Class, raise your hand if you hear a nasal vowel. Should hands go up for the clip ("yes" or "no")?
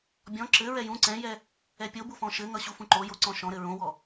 yes